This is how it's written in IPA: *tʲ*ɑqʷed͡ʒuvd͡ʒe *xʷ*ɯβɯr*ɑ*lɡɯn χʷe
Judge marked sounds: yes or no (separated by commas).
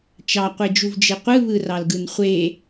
no, no, yes